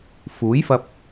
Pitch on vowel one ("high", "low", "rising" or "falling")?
rising